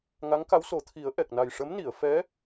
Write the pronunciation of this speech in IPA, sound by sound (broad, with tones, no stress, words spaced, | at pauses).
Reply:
ŋa˧˥ŋka˧˥wso˨˩˦t̪ʰi˨˩˦ə̯ ʔɛ˨˩k̚na˨˩j ʂə˧˥mni˨˩˨ə̯fɛ˧˥